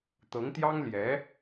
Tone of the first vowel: rising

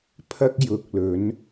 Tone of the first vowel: high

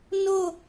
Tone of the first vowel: falling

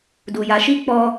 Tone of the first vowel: low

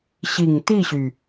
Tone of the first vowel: low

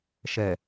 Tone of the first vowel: low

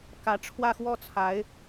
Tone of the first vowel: rising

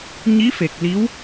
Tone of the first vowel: rising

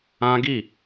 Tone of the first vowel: high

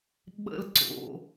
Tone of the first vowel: high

